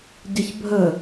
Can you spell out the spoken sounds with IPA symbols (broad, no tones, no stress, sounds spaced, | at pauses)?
ɟ ʌ ç bʱ ə